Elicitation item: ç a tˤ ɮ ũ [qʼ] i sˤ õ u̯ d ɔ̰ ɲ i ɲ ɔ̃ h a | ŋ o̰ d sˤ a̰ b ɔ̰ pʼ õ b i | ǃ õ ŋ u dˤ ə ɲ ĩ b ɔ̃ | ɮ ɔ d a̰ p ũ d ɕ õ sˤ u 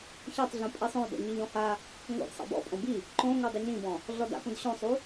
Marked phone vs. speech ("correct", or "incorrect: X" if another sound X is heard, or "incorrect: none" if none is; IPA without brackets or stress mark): incorrect: pʼ